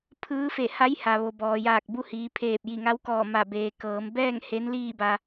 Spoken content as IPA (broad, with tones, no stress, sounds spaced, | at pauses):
pʰ ɯː˧˥ f e˧˩ h a˧˥ j h a˩ ʋ o˩ b ɔː˩ j aː˧˩ k̚ b u˧ h iː˩˧ pʰ eː˧˩ p̚ j i˧˩ ŋ a˧˥ w k ɔː˧˩ m a˧˩ b eː˩ k ɤː˩˧ m b ɛː˥˨ ŋ h e˧˥ n l iː˥˨ b a˧